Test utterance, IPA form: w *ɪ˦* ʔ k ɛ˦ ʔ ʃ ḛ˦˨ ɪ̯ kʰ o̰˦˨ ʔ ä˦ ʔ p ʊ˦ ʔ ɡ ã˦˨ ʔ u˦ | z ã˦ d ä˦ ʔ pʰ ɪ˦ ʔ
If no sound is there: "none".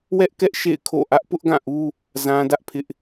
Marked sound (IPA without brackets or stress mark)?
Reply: ɛ˦